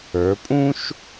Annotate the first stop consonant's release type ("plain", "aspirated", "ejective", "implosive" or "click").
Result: ejective